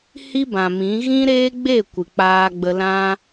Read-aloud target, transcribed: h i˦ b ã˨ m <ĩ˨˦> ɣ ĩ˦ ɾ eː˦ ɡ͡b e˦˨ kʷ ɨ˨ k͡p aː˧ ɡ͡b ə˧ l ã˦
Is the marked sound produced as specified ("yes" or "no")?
yes